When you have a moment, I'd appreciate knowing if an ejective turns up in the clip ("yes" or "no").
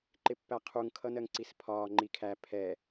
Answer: no